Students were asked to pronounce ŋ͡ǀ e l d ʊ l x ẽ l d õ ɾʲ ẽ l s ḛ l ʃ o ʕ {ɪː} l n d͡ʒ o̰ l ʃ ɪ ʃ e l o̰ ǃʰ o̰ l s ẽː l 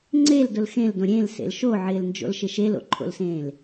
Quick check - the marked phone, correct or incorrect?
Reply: correct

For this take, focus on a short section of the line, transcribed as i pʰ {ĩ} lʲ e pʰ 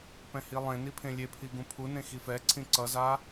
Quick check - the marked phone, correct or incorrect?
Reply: incorrect: ẽ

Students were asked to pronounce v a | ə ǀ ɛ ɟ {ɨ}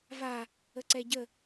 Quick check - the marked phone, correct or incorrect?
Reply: incorrect: ə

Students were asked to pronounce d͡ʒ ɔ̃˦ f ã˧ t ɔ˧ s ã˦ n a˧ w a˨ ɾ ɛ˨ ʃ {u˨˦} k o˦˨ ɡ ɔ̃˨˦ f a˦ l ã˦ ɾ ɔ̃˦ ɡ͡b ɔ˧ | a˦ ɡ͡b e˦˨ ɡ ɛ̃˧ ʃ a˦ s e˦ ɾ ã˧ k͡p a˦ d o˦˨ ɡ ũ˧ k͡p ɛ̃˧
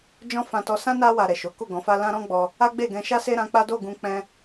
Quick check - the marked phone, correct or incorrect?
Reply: incorrect: o˨˦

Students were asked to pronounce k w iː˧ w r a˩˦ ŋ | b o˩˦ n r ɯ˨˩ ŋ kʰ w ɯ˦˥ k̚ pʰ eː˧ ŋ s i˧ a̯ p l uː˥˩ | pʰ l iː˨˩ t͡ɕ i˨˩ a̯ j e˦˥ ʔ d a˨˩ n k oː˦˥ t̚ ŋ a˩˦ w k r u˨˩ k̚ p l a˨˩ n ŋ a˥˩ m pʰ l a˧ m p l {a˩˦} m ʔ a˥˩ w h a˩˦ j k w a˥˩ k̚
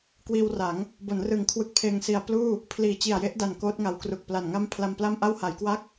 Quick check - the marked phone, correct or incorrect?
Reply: incorrect: a˥˩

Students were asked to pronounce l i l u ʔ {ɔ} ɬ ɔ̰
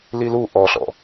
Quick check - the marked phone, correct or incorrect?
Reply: correct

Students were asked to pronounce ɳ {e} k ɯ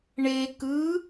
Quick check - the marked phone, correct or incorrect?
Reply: correct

